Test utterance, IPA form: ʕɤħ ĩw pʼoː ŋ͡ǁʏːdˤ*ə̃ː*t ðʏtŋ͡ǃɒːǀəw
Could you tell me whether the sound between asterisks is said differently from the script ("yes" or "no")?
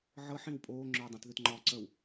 yes